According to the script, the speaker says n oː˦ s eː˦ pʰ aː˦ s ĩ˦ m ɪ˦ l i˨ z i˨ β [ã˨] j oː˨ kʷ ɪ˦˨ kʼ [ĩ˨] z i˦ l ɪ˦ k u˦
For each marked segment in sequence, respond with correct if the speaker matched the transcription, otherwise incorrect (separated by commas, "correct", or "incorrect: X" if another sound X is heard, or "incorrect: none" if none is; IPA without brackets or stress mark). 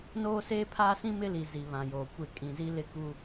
correct, correct